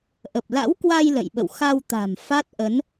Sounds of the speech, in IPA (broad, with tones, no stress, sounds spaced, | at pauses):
ʔ ə˨˩ p̚ l a̰˧˥ w k w a˧ j l ə̰˧˨ j ɓ ə̰˧˨ w x a˧ w t̪ a̤˨˩ m f a˦˥ t̚ ʔ ə˨˦ n